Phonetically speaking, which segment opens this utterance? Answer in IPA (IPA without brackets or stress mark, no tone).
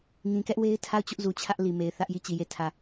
ŋ